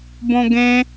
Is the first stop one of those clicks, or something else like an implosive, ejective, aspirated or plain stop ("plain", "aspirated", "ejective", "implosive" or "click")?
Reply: plain